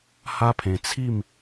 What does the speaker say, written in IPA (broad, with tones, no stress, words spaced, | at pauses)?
ha˦pʰẽ˧ t͡sʰi˥˧m